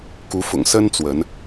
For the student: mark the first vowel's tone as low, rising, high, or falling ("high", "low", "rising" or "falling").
rising